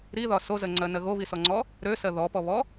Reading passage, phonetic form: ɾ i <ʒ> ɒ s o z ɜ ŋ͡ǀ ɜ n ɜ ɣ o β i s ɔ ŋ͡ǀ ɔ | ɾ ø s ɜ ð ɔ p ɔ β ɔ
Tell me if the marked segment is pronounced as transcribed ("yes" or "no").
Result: no